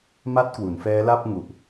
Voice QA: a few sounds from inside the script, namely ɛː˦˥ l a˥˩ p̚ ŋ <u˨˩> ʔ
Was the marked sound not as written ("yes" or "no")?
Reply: no